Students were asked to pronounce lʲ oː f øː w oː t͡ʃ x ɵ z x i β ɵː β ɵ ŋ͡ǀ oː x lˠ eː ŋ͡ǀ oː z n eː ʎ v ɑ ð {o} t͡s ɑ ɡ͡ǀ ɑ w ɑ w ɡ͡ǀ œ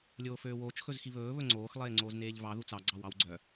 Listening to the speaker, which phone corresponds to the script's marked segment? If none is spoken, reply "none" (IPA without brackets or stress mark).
u